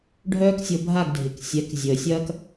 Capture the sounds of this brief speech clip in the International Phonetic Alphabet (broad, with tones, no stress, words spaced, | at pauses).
ɖʱœː˥ksʲo˧bʱa˥˩ɡ dʱɪ˩ksʲɛ˩˥k zʲəː˩sʲɐː˥k